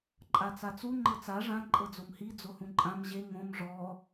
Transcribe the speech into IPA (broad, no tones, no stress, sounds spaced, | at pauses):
ǃʼ a t͡s a t͡s u ŋ͡ǃ ɤ t͡s a ʐ ã ǃʼ ɤ d͡z o m h i d͡z o h ũ ǃʼ ã m ʑ e ŋ õ m ʐ ɔ